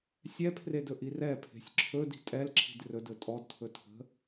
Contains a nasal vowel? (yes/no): no